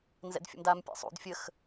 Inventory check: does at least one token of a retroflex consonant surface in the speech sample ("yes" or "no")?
no